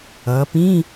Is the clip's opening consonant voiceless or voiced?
voiceless